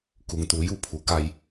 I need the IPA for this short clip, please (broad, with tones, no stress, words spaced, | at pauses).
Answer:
ku˩ŋt̪uː˩˧ju˥˨pʰu˩ ka˧j